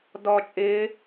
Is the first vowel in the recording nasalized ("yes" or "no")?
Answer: no